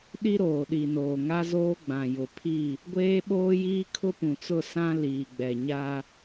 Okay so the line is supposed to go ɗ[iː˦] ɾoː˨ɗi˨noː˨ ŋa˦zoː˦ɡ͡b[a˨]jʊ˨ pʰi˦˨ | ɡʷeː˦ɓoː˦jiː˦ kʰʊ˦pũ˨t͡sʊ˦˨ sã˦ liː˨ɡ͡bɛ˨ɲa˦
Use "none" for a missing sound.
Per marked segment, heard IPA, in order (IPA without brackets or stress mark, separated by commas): i˦, ã˨